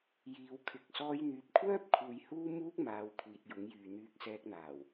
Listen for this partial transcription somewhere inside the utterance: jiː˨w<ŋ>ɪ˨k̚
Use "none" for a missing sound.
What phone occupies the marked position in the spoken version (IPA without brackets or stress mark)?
kʰ